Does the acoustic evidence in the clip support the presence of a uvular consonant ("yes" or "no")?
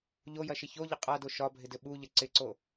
yes